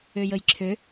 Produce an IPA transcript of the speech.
ø j ə j ǁʰ ø

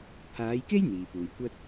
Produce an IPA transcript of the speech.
pʰ aː˨˧ j k e˥ j n̪ iː˨ p uː˨ j kʷ ɐ˥ t̚

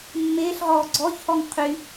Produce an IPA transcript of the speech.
mː eː ɬ ʁ ɔː ɡ͡ǀ ɔː ç h ɔː ŋ qʰ y

